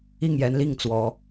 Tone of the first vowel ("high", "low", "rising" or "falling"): falling